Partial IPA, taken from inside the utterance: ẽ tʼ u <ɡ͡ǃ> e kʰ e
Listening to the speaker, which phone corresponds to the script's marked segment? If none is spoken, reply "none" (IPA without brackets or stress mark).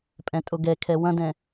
ɡ